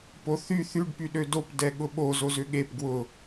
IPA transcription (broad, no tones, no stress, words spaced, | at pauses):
poθy θyɖ pyɗødop dɛɠʊɓoz ozʏɠep ɡwʊ